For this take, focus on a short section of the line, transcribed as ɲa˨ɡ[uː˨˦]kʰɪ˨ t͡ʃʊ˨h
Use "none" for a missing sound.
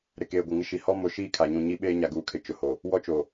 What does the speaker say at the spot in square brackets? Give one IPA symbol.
uː˨˦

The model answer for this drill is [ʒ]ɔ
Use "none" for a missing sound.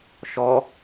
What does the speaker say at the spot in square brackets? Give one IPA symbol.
ʃ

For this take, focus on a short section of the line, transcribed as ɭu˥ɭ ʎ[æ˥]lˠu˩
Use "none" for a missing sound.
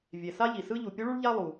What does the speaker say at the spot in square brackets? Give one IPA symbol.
a˥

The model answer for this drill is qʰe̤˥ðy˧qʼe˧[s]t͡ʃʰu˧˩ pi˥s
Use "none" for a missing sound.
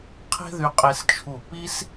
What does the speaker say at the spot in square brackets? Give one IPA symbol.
s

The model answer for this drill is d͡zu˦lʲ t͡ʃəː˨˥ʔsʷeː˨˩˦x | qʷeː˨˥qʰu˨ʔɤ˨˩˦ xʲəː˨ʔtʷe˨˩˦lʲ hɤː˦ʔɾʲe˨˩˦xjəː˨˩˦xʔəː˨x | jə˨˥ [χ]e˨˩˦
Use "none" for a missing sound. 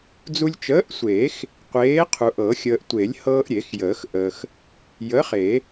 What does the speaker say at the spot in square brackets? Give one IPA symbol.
χ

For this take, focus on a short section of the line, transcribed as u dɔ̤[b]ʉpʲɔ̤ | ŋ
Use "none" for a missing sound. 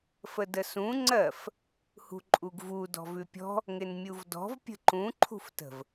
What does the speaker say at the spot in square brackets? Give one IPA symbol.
v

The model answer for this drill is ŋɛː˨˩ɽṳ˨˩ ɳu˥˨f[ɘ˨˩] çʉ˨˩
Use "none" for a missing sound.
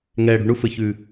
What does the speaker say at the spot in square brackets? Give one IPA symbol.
ɘ˨˩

